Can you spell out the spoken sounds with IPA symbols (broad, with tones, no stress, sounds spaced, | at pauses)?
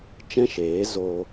t͡ʃ ɛ̃˦ ʃ eː˨˦ z oː˧